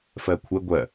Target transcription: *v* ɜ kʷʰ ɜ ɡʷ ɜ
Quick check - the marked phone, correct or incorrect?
incorrect